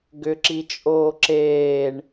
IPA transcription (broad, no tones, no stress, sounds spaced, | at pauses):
ɡ ʏ ǁ i t͡ʃʼ oː ǁ eː ɳ